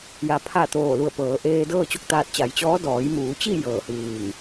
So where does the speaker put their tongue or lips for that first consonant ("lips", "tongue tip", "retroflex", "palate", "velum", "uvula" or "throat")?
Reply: palate